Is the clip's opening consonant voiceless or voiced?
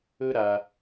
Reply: voiced